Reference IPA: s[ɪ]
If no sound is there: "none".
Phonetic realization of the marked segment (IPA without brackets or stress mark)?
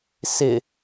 ɪ